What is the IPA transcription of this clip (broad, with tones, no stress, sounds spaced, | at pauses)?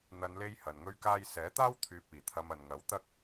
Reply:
n̪ ɐ˨˧ n l e˧ j h ɐ˨ n ŋ ɵ˥ ɥ k aː˥ j s ɛː˨˥ t̪ aː˥ w t̪ʰ yː˨ p̚ iː˨˩ t̪ʰ ɐ˧ m ɐ˨ n ŋ ɐ˨˥ w t̪ ɐ˥ k̚